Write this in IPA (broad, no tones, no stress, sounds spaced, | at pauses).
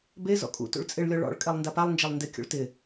b e z ɔ̰ kʼ ṵ t ṵ ɭ t͡sʼ ɪ ɭ lʲ ɔ ɭ ɔ̰ ɭ kʼ ɛ lˠ n d a p a lˠ n d͡ʒ e lˠ n d ɪ kʲ ṵ ɭ t ɪ